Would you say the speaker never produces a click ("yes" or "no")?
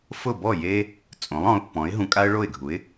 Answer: yes